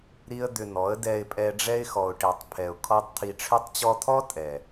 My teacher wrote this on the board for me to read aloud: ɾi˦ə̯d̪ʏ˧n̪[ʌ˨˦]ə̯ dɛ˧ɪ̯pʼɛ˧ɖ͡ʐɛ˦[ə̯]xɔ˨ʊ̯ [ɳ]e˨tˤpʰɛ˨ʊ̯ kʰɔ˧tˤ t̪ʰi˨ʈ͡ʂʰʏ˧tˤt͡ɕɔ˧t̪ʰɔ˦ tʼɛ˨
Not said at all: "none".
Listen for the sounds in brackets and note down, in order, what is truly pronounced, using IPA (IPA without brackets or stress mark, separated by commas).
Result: ɔ˨˦, ɪ̯, ʈ